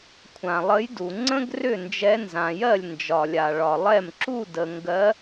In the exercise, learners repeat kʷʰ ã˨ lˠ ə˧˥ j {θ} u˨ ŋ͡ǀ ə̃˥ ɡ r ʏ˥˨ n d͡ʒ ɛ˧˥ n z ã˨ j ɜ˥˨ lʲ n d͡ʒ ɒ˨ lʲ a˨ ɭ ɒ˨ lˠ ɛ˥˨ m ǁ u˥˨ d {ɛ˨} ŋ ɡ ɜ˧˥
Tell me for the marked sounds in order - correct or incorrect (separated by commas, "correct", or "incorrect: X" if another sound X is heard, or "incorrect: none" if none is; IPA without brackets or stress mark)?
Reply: incorrect: d, incorrect: ə˨